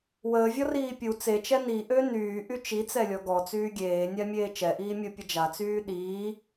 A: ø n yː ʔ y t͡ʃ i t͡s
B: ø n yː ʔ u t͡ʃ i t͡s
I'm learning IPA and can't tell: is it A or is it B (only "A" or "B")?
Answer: A